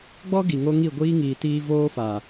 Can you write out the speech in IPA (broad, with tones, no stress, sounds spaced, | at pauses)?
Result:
ɡ͡b ɔ˦ ɡ i˨ ŋ o˧ ŋ i˦˨ ɡʷ iː˦ ŋ iː˨ t iː˧ v oː˦ f a˨